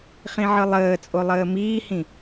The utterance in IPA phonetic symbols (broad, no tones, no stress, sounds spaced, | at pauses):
χ ĩ ʕ ɯ lˠ əː t͡sʼ o lˠ əː m iː h ĩ